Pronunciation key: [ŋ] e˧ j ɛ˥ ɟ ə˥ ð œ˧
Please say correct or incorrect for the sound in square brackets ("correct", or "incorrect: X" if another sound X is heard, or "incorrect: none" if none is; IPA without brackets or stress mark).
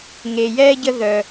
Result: correct